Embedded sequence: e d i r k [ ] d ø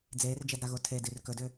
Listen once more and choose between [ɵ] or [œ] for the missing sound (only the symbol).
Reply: ɵ